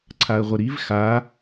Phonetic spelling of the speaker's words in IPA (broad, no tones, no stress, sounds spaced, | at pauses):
ǀʰ a ə̯ ʁʷ ə ɾ i v x a